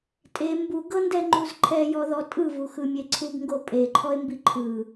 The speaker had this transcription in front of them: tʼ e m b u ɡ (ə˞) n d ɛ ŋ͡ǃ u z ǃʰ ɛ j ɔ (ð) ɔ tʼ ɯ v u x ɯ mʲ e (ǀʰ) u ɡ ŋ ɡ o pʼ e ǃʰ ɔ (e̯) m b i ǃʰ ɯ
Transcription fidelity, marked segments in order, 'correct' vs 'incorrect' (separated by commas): incorrect, correct, correct, correct